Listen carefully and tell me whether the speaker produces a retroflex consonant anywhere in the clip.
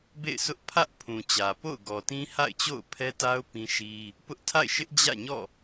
no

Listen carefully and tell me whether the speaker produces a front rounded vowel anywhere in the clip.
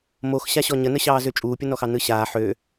yes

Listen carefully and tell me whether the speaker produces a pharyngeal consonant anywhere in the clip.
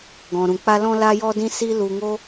no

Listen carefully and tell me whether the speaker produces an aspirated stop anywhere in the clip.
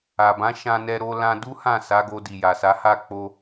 no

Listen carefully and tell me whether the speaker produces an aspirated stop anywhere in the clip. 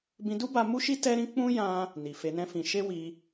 no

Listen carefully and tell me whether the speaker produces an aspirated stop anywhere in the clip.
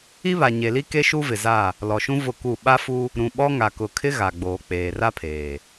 yes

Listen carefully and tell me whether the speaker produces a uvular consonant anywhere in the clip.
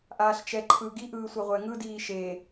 yes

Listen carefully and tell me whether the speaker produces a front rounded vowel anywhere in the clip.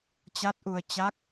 no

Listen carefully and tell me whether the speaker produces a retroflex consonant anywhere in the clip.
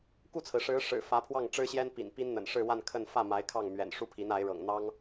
yes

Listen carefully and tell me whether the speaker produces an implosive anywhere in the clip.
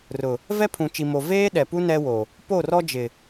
yes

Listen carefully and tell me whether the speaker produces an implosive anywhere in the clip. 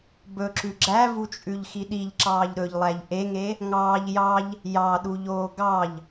yes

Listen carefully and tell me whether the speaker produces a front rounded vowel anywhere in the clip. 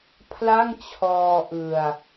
no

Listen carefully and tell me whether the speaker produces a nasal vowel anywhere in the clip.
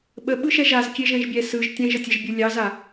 yes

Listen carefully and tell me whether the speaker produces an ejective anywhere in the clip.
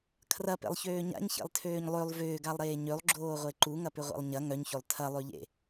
no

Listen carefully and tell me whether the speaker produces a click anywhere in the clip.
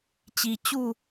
no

